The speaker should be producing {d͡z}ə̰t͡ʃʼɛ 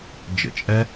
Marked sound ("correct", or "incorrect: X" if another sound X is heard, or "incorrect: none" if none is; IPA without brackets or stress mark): incorrect: d͡ʒ